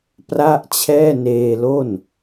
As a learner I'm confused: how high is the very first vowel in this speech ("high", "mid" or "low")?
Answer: low